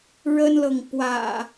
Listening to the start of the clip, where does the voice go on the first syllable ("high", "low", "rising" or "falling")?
high